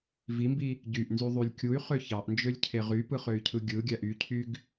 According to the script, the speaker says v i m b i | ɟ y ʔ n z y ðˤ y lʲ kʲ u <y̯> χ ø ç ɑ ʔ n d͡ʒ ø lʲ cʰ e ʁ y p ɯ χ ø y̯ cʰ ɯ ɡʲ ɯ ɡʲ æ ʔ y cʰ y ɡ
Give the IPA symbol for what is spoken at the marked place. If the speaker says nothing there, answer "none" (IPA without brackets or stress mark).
y̯